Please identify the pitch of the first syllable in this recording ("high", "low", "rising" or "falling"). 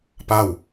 falling